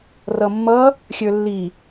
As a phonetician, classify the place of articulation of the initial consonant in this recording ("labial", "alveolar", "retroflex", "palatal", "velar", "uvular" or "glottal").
alveolar